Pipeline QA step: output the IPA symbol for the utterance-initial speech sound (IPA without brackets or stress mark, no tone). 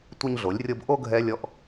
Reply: tʷ